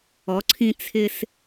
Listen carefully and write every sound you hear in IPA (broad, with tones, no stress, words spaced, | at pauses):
ɔ˨˦ǀʰĩ˦ t͡sʰɪ˦s